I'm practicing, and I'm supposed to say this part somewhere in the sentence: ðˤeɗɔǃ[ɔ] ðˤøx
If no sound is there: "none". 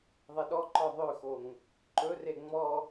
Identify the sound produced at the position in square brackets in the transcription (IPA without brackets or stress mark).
ɔ